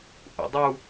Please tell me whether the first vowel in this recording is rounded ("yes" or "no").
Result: yes